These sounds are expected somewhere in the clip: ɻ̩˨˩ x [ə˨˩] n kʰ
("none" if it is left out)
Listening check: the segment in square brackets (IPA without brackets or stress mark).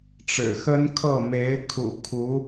ə˥